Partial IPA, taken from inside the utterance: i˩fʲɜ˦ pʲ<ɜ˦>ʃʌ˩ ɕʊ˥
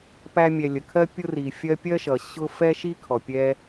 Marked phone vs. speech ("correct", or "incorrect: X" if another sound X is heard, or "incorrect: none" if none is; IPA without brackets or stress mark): incorrect: ɜ˥